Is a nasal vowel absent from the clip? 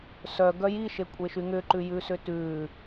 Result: yes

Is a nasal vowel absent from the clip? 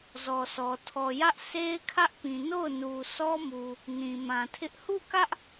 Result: no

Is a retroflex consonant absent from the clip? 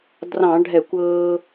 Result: no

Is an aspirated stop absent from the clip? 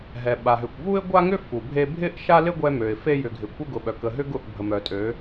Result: yes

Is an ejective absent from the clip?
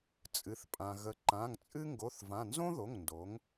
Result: no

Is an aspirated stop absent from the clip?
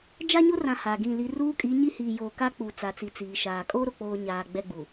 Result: yes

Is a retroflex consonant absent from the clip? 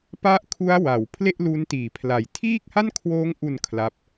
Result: yes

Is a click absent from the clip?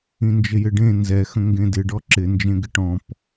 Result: no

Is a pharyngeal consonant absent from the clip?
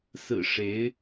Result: yes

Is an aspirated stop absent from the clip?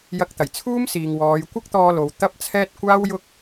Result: no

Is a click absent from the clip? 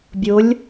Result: yes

